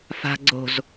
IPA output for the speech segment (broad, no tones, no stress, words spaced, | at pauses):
fa̤ ɡ͡ǀo̤z